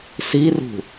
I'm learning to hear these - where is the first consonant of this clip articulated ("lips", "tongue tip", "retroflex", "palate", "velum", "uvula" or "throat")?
tongue tip